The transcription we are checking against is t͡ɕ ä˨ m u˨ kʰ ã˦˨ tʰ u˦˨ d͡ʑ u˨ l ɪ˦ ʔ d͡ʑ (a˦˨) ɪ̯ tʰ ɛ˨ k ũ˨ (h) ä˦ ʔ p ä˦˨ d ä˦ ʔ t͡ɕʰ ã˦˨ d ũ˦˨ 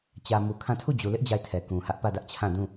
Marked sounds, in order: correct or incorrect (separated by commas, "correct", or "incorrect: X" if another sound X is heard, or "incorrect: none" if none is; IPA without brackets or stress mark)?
correct, correct